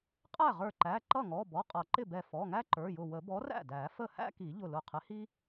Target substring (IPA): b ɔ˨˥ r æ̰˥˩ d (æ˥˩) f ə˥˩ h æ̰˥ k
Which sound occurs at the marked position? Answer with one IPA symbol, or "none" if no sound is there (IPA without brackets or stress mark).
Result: æ˨˩˦